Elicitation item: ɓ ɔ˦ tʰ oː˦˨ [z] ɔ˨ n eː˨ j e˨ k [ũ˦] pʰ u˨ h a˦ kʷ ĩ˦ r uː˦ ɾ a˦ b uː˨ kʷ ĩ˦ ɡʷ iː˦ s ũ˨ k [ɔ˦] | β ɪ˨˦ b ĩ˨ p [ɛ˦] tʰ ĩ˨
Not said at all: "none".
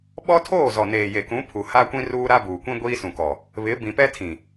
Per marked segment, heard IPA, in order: z, ũ˨˦, ɔ˨, ɛ˦

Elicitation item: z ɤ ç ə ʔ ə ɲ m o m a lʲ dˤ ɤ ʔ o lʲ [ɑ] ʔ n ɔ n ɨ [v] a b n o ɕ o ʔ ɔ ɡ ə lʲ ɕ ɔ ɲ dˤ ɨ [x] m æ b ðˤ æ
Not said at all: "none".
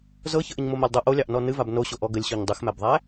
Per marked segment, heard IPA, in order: ɑ, v, x

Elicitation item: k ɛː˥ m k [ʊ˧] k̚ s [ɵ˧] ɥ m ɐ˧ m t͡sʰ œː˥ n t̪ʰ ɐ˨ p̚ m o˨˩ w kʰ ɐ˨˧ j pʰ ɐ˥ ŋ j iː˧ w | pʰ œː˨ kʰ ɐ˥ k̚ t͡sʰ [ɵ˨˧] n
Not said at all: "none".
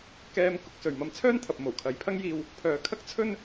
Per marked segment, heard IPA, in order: ʊ˧, ɵ˨, ɵ˥

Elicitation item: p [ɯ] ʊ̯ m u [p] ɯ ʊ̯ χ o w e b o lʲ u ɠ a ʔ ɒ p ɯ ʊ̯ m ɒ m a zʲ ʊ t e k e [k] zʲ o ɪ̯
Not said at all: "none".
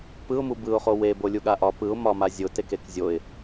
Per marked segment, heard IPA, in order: ɯ, b, k

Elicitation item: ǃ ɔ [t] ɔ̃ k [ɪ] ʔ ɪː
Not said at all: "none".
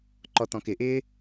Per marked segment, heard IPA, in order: t, ɪ

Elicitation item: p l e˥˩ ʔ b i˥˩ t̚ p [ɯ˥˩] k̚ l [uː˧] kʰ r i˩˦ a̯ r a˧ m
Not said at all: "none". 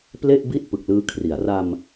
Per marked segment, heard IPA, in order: ɯ˨˩, ɯː˧

